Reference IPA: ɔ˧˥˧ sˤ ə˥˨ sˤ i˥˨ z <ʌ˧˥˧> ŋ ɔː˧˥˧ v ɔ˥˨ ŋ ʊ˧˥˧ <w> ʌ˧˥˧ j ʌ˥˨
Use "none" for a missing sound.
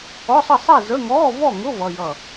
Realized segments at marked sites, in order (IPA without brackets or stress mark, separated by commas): ə˧˥˧, v